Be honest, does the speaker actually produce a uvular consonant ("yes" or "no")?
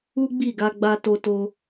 no